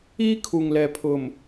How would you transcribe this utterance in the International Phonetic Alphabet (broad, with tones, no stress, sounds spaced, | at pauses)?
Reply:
iː˦ kʰ u˨ ŋ l ɛ˨ pʰ ʊ˨ m